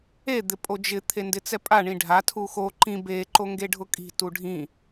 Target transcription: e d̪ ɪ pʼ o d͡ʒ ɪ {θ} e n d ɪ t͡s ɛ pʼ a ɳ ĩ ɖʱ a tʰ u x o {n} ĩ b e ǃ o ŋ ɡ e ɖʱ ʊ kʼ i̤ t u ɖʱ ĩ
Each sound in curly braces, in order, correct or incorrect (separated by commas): incorrect, incorrect